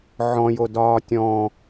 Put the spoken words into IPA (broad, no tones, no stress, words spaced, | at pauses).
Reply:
ʕɔ̃jodɒː tʲɔ̃